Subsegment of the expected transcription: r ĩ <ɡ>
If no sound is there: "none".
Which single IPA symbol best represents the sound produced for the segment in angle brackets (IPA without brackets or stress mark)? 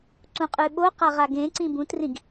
ɡ